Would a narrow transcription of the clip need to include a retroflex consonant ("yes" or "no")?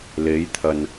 no